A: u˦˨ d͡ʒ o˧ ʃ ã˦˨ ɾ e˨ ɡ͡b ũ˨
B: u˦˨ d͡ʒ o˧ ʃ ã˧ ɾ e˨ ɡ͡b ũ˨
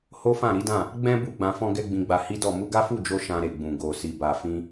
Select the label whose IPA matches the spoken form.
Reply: B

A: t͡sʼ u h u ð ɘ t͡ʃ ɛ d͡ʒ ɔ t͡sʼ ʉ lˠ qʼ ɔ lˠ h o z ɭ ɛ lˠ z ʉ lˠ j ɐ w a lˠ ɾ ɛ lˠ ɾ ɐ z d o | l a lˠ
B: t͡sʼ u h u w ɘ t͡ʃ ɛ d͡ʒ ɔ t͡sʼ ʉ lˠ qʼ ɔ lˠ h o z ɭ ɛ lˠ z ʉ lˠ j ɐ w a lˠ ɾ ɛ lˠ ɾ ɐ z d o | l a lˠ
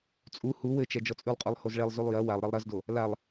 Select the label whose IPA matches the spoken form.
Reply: B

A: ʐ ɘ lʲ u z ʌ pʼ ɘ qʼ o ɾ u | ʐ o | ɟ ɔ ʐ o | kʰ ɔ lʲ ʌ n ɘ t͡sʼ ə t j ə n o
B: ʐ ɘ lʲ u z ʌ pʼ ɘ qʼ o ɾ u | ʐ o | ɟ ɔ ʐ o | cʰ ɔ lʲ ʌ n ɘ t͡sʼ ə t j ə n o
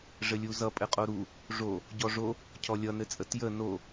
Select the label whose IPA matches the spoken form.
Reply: B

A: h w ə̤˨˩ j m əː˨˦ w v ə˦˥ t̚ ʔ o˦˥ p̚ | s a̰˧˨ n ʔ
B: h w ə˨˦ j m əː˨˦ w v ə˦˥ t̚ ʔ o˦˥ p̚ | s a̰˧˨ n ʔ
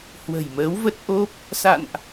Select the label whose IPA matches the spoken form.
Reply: A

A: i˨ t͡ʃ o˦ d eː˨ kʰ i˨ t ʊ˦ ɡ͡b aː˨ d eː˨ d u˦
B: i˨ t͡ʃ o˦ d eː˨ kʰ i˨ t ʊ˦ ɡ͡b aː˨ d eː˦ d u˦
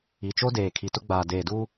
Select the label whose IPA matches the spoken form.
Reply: A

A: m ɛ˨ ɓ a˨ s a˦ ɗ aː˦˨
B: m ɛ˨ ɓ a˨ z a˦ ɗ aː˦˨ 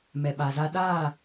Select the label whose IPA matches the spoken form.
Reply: B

